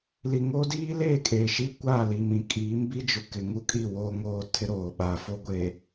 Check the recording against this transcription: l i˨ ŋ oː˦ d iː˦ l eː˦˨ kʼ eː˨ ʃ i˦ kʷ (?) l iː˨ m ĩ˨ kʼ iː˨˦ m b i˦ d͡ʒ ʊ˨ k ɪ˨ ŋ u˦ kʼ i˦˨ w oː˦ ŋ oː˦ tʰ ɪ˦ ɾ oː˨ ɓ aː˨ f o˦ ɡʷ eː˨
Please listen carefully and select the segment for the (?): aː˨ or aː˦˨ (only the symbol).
aː˦˨